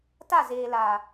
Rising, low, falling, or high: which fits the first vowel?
falling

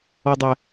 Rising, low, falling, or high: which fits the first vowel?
low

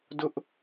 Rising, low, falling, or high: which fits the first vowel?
high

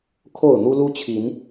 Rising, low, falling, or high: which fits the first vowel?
falling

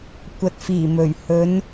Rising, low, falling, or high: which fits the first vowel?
low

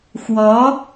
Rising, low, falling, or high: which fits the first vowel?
rising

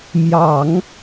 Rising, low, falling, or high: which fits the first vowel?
low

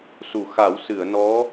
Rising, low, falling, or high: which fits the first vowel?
low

